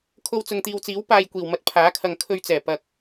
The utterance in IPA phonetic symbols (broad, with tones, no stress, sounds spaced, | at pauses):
kʰ o˧ w t͡s ʊ˨ ŋ t̪ iː˨ w t͡s iː˨˥ w p aː˧ j kʷ iː˨˩ w m ɐ˨ t̚ pʰ aː˨˥ kʰ ɐ˨ ŋ kʰ ɵ˧ ɥ t͡s ɛː˨˩ p ɐ˨ k̚